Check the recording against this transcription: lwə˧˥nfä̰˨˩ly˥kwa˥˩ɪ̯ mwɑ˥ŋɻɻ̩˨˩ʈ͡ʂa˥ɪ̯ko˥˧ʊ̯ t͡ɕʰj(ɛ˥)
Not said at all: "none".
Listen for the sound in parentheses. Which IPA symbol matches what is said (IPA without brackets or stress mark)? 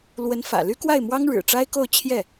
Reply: ɛ˥˩